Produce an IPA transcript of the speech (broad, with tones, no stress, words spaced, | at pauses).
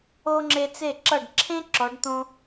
o˦ŋ͡ǁe˧ t͡se˦˨ǁʌ˦˨ɖ ǁʰẽ˦ ǁɔ˨˦ɖt̪õ˦